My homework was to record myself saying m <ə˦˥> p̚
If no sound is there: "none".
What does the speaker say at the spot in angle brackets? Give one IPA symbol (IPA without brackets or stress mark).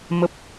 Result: ə˨˩